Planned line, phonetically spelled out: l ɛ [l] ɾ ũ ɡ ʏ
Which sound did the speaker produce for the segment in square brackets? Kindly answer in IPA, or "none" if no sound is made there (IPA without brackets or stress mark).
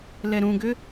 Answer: none